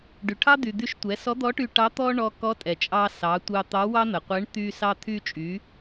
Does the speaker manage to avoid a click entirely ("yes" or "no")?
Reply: yes